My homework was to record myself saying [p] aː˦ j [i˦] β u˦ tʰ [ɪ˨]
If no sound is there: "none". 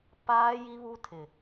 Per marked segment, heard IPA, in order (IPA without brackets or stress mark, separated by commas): p, i˦, ɪ˨